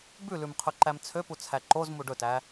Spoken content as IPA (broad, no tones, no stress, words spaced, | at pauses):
bʉlʉmqʰɵǃæm t͡sʰøput͡sʰæ ǃozmu ɖɵtæ